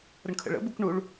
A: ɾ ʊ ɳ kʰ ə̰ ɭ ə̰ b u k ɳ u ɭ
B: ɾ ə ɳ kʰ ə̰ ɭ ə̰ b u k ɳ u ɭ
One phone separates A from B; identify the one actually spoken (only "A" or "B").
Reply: B